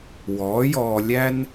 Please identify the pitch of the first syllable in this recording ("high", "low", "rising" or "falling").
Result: rising